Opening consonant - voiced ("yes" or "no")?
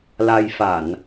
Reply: yes